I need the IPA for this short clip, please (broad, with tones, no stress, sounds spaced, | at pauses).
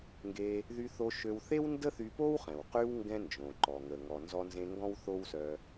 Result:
ŋ ɡ e˧ | ð y˧ θ o˧ ʃ ø˧ w θ e˥ w n d ə˥ θ y˧ p o˥ w χ ɛ̃˩ w q y˧ w ŋ ɡ ɛ̃˥ n d͡ʒ õ˩ ǃ ɔ˩ ŋ ə˩ ŋ ɔ˩ n z ɔ˧ n z ẽ˧ ŋ ɡ ɔ̃˥ w θ o˥ w s œ˧